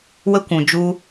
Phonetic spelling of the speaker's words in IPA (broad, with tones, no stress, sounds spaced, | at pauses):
w ə˧ kʷ ũ˨ d͡ʒ u˧